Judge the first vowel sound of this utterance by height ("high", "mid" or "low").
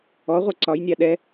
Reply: mid